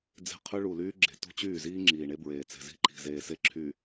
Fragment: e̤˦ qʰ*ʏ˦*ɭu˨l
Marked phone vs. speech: correct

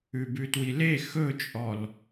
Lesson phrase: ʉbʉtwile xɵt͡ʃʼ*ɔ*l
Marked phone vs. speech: correct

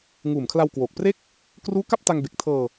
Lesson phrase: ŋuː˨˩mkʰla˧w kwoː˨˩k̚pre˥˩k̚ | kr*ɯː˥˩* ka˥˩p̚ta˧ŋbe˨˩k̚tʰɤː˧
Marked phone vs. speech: incorrect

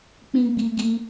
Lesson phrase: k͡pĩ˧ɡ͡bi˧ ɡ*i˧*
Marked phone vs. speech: correct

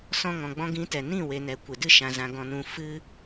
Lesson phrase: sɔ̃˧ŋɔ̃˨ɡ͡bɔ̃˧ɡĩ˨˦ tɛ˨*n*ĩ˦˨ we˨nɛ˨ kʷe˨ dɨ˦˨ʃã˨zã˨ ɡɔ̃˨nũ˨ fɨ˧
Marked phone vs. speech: correct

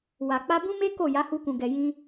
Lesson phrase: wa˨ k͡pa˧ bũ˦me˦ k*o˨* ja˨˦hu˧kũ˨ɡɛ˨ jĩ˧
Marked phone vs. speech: incorrect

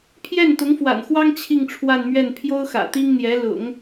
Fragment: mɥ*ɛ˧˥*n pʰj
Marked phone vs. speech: incorrect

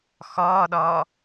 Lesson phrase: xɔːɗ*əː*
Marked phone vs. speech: incorrect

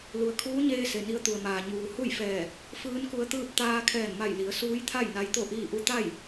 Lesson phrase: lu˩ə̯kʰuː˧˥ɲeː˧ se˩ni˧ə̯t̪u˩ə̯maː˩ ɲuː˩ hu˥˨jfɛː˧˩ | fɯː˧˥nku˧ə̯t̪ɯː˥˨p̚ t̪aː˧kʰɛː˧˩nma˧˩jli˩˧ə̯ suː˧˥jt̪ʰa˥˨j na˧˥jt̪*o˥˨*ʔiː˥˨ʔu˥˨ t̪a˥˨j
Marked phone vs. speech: correct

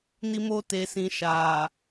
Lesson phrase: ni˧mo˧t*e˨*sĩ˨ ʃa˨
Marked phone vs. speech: correct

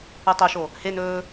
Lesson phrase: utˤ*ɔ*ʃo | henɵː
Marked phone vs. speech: incorrect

